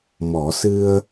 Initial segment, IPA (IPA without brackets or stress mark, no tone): m